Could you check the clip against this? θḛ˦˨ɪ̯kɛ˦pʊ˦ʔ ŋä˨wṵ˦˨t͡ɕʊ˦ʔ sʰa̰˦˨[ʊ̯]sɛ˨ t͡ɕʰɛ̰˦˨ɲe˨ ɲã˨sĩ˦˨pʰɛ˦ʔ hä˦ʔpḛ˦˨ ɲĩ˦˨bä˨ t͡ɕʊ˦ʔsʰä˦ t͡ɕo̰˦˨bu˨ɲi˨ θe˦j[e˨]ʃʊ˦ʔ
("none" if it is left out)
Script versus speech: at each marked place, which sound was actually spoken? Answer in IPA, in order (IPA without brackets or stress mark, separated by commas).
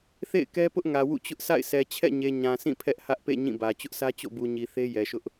ɪ̯, ɛ˨